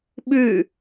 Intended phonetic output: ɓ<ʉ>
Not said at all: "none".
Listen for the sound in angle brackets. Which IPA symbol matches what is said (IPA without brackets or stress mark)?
ʉ